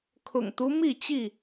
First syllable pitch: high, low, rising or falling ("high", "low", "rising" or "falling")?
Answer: low